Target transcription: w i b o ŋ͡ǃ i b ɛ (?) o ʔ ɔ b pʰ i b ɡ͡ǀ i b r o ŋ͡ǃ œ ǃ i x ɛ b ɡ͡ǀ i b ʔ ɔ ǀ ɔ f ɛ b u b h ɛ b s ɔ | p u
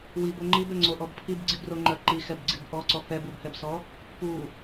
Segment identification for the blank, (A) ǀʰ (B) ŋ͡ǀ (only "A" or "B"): B